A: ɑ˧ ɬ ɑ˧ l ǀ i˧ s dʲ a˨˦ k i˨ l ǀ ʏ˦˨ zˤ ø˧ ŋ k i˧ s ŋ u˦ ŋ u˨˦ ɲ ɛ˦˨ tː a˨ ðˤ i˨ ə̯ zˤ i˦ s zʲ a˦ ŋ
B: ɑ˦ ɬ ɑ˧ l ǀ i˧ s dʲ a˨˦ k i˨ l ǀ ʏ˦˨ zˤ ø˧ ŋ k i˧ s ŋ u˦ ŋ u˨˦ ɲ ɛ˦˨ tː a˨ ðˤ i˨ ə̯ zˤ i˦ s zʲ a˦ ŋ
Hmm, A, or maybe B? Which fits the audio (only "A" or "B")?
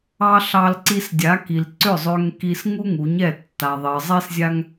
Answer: A